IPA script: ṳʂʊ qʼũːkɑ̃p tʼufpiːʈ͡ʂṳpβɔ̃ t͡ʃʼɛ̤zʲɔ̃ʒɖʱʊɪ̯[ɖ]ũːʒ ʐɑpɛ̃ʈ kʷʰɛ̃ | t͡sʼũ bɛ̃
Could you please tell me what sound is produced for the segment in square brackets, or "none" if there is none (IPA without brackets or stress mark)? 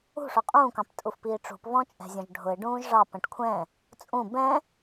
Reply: ɖ